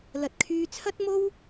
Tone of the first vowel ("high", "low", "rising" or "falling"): low